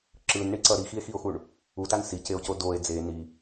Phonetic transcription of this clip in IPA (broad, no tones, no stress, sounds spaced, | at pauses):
ǁ ɯ n ɳ i ǀ ʌ ɾ i x i e̯ x i o̯ x u ɳ | u t a n s i c e o̯ c o d o e̯ d͡z e n i